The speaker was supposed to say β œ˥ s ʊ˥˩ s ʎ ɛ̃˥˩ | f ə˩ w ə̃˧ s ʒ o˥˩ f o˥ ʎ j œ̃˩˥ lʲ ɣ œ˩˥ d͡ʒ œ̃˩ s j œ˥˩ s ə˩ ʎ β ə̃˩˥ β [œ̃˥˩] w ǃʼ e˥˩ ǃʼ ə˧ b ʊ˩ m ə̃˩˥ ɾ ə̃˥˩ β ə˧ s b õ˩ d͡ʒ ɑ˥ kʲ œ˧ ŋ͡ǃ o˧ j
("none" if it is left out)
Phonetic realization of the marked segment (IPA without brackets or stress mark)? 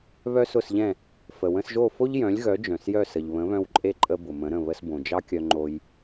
œ̃˧